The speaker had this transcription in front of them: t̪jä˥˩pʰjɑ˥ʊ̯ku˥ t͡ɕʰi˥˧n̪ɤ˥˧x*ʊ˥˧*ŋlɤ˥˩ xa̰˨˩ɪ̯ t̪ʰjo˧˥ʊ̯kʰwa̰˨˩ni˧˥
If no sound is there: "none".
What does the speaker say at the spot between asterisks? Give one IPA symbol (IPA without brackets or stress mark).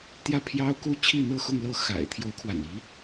ʊ˥˧